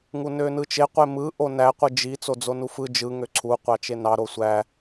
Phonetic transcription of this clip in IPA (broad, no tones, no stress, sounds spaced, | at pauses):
ŋ u n ø n ɯ t͡ʃ e qʷ e m ɯ ʔ o n æ qʷ ɯ d͡ʒ i t͡s o d͡z o n u f ɯ d͡ʒ ɯ ŋ ø ǀʰ u qʷ ɑ t͡ʃ e n ɑ ɾ o sʷ æ